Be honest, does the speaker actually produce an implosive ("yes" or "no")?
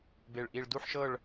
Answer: no